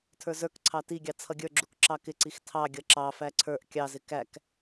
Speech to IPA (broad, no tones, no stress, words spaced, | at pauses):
tʰə˞zə˞kǀʰɑ tiɡʲɑ t͡sʰʌɡʲə˞ɡ͡ǁuk ǁɑkɪǀix tʰɑ ɡʲʌǁɑfæ ǀʰə˞ʔ kʲɑzɪ kæk